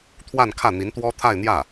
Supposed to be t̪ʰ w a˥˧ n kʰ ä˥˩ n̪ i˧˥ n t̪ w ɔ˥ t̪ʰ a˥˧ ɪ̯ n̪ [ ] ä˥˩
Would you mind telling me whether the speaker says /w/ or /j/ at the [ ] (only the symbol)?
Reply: j